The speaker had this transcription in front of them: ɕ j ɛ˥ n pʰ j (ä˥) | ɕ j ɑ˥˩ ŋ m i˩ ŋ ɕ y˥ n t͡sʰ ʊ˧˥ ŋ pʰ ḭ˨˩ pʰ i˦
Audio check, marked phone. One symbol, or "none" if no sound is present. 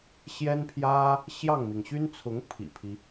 ä˥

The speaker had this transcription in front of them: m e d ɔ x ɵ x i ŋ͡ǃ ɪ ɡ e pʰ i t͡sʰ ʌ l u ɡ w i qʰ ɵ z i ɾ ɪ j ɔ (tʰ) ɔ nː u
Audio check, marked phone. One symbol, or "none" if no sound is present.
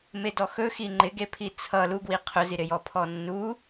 pʰ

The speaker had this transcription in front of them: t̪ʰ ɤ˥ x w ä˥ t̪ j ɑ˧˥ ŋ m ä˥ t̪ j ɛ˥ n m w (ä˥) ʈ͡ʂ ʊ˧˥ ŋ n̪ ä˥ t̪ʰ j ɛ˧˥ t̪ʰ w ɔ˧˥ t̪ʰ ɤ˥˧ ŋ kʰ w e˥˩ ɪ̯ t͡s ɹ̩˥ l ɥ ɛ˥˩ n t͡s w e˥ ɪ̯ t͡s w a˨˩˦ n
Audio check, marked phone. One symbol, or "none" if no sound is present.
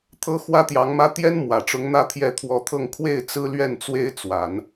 ä˨˩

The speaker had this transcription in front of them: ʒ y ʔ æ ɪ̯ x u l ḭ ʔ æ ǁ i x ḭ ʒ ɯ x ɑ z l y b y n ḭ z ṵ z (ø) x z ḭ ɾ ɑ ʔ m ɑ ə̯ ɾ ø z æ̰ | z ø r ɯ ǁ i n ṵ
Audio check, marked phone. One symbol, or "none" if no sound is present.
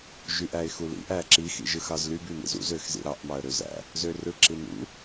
ø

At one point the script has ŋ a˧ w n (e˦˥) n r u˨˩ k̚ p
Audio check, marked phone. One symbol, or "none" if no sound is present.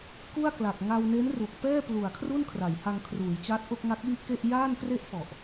e˦˥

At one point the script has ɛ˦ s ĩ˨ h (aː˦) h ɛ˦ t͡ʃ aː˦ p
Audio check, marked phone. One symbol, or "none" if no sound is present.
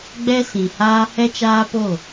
aː˦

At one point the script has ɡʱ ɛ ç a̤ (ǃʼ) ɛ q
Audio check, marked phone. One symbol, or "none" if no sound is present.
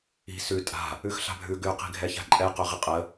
ǃʼ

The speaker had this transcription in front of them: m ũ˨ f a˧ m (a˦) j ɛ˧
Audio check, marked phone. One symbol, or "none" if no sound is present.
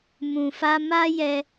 a˦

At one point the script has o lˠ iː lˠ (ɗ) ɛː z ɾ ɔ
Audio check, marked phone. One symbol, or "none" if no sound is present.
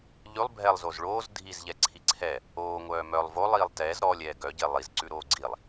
t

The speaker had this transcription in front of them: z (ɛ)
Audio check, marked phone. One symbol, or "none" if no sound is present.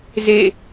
e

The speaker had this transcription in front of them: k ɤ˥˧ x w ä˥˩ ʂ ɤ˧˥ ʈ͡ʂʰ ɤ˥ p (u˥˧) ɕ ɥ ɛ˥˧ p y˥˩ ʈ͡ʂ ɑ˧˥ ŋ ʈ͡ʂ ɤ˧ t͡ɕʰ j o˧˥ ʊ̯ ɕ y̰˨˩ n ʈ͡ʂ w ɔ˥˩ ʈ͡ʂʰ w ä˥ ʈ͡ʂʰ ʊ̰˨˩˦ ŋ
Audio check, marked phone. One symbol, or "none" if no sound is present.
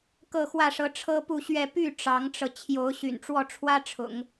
u˥˧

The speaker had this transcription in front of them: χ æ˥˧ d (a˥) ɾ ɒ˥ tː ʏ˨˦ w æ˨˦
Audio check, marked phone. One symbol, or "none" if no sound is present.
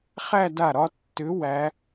a˥˩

